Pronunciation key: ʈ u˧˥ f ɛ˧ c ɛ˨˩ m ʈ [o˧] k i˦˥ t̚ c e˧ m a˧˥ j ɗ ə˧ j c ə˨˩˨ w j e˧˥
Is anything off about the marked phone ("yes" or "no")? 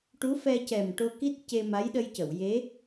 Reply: no